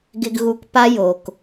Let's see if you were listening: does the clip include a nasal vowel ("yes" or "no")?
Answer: no